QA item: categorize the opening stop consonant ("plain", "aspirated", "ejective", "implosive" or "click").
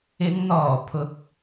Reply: aspirated